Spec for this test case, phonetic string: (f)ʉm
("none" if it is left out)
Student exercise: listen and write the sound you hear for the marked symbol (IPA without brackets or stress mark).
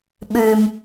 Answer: ɓ